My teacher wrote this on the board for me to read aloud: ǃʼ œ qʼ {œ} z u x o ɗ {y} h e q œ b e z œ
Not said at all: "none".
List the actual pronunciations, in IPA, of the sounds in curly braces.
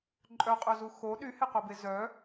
œ, y

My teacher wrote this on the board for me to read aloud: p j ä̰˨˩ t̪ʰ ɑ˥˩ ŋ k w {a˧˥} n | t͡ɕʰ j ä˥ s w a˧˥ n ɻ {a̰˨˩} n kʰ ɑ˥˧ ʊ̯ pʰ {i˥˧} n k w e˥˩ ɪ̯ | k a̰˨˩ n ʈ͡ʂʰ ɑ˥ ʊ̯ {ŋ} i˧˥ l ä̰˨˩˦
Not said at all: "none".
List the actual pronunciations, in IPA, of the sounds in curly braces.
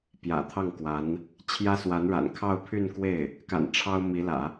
a˧˥, a̰˨˩, y˥˧, m

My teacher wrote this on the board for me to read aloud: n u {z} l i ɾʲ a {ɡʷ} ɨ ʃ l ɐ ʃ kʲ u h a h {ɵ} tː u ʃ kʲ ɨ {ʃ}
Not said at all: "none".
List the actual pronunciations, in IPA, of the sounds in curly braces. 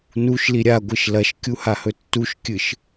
ʃ, ɡʷ, ɵ, ʃ

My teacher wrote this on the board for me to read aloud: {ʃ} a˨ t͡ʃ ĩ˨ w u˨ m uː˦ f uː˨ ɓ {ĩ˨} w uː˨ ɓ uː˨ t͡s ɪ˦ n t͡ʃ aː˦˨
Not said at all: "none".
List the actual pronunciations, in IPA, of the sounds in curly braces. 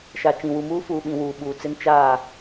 ʃ, ĩ˨

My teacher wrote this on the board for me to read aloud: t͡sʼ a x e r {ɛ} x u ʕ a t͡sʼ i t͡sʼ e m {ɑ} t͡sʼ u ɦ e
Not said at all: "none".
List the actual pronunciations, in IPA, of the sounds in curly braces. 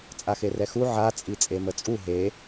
ɛ, ə

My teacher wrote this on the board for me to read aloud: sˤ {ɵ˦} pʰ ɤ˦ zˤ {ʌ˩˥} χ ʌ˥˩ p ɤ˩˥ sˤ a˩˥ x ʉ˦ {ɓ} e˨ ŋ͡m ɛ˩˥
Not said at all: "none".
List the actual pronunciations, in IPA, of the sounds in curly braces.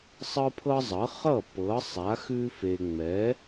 ɤ˦, ʌ˩˥, f

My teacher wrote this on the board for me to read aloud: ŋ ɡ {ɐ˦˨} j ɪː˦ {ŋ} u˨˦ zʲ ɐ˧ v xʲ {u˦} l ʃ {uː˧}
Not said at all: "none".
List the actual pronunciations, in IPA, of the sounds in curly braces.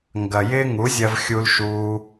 ɐ˨, ŋ, u˧, uː˧

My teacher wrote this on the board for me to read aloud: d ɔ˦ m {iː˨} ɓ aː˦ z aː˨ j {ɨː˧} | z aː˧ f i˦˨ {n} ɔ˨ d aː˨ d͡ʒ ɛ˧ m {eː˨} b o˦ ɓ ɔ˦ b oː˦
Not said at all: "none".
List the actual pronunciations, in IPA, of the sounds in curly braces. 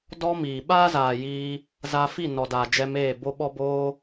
iː˨, iː˧, n, eː˦˨

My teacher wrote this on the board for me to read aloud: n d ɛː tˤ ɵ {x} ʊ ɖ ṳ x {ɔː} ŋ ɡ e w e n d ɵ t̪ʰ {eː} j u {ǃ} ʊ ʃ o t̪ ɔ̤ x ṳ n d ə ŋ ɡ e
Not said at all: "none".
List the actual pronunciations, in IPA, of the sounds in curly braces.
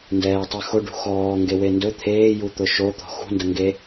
x, ɔː, eː, t̪

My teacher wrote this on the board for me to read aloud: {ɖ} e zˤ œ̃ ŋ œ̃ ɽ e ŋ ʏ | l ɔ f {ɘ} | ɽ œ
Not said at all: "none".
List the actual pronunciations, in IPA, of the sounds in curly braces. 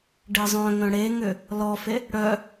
ɖ, e

